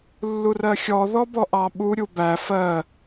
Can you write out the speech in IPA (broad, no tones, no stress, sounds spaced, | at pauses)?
lː u r ɜ xʲ ɔ ð ɔ b ɔ ʔ ɑ ɓ u ɾʲ u b æ f ɜ